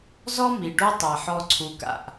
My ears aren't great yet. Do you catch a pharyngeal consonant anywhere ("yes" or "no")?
yes